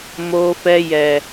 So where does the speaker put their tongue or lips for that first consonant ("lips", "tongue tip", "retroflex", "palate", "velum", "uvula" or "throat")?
lips